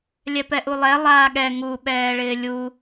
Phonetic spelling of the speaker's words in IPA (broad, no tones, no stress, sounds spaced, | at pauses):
lʲ ɛ p ɛ ʔ u lˠ ɛ lˠ aː ɠ ɛ ŋ u ɓ ɛː ɭ ɪː lʲ u